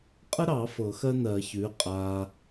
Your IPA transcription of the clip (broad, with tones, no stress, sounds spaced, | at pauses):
qʼ ə˥ ɾ ɑ˨˩˦ f ɤ˨˩˦ x ɜ˥ n ɜ˨˩˦ ç ʉː˩˥ qʼ aː˨